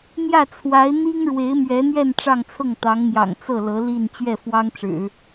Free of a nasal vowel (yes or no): yes